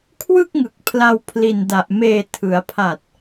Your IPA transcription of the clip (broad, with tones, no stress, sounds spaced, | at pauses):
kʰ w ɯ˥˩ k̚ ŋ ɯ˨˩ k̚ pʰ l a˧ w pʰ l i˨˩ n d a˨˩ ʔ m eː˨˩ tʰ ɯ˩˦ a̯ pʰ a˨˩ t̚